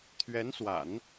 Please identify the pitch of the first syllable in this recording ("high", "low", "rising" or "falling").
rising